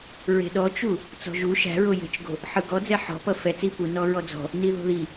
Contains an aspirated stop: no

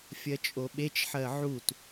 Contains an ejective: yes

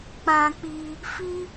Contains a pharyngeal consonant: no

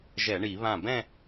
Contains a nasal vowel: yes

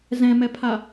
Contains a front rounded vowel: no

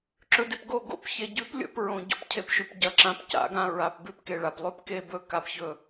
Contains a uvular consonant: no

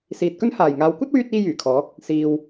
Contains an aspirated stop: yes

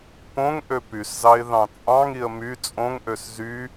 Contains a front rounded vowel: yes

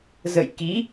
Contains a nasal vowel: no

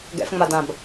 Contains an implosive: no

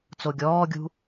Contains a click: no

